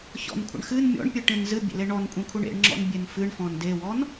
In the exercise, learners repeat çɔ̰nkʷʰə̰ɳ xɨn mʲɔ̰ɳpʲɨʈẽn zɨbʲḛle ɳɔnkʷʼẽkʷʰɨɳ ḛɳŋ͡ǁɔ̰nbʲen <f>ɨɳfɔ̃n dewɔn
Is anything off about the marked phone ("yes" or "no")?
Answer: no